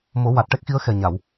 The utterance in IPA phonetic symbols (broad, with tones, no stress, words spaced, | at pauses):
mo˨˩˦ wa˨˩t̚ʈɛ˦˥k̚xi˧˥ə̯ xɛ˨˩ɲa˨˩˨w